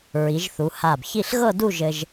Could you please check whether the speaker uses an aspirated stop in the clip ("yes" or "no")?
no